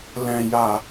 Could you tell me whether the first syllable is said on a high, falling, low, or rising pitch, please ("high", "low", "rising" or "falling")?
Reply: low